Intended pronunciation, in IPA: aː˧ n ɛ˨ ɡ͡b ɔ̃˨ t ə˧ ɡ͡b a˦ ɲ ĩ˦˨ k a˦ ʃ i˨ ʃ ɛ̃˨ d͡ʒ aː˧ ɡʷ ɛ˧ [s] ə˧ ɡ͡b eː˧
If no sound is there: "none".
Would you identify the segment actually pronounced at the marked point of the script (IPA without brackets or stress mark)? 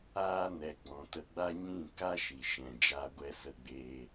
s